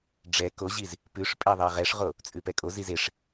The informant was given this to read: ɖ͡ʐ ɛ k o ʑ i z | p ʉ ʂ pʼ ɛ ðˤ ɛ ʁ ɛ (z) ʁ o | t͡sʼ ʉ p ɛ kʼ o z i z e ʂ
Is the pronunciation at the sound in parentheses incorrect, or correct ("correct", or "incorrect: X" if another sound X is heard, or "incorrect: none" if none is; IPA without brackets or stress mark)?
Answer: incorrect: ʂ